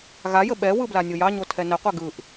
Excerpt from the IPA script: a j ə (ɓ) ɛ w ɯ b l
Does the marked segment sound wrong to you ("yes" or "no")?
no